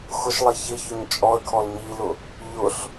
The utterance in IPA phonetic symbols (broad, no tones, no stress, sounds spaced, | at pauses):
x ʊ ʃ lˠ e ç ɪ ç ʊ ɲ t͡ʃʼ ɔ ə̯ kʰ ɔ l ɲ i l ʊ | ʎ ʊ ɬ